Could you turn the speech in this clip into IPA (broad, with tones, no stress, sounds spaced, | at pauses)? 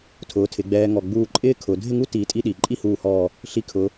tʰ ʊː˩˧ tʰ ɪ˩˧ ɡ͡b ɛː˧ ŋ ɔ˧˩ ɡ͡b uː˥˧ ǃʼ ɪː˥ kʰ ʊ˩˧ dʱ ɪ˥˧ ŋ u˥ t iː˧ tʼ i˥ ɗ i˩˧ ǃʼ i˥˧ h uː˧˩ h ɔː˧˩ | ɬ i˧ kʰ ʊ˩˧